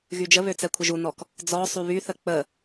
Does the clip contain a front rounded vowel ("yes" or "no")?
yes